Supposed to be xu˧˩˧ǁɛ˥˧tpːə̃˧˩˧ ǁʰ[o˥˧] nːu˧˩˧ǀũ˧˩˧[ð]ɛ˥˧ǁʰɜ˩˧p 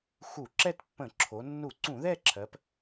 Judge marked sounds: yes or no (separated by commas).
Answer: no, yes